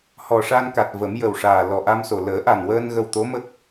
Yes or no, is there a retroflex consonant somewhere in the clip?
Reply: yes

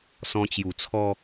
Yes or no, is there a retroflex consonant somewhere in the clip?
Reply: no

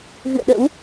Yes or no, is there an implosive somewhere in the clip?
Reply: yes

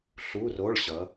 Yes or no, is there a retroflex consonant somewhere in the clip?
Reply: yes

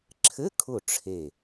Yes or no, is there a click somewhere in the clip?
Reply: yes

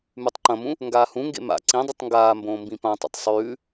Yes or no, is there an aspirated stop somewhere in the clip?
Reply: no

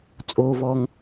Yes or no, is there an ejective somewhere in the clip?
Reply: yes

